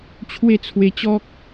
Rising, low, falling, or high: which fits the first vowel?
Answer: falling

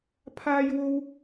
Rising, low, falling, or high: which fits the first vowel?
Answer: high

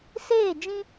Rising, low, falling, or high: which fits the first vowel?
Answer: falling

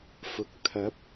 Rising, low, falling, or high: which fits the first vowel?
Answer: low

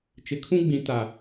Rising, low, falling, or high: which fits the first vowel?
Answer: low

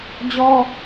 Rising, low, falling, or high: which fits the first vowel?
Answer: high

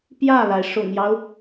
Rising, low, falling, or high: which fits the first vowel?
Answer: falling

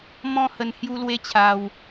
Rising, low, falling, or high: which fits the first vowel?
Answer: high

